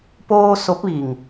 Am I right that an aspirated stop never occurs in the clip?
yes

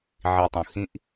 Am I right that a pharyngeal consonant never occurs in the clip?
no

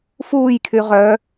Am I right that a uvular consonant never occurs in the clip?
no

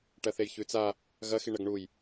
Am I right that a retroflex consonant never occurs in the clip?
no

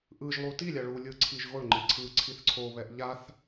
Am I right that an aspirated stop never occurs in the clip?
no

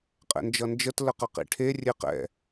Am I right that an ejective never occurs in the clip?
no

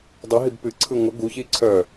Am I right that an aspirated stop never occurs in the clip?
no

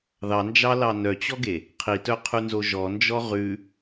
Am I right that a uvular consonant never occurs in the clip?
no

